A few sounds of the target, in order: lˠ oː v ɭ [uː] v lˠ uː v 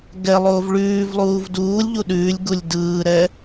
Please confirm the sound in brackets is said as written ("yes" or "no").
no